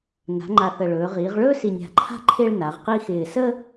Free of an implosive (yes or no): yes